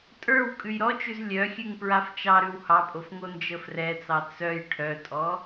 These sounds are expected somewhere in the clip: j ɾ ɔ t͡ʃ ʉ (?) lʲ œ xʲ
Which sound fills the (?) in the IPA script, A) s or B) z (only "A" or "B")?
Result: B